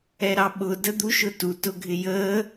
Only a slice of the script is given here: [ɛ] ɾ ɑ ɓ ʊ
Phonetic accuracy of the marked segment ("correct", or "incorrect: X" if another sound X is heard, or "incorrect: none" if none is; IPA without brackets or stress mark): correct